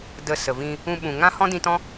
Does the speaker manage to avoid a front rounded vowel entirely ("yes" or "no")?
yes